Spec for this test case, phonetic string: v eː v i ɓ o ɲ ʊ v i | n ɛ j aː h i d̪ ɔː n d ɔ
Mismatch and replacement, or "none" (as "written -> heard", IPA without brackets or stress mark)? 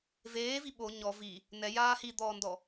ʊ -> ɔ